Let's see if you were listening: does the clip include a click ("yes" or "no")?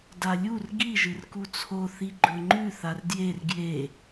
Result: yes